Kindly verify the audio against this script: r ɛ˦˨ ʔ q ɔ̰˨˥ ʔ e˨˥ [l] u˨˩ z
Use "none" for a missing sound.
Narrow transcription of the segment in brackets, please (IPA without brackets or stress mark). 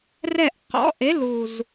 l